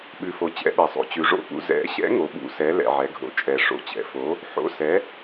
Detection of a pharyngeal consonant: present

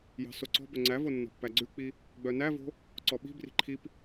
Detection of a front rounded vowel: present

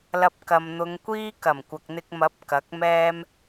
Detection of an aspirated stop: absent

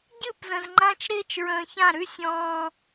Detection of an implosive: absent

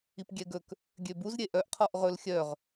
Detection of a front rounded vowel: present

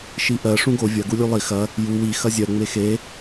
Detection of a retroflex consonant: present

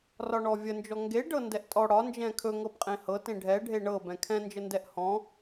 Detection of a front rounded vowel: absent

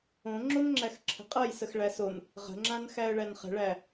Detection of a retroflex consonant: present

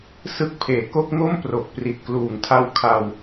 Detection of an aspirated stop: present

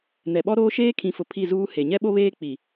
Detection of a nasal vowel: present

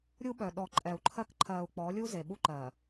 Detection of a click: present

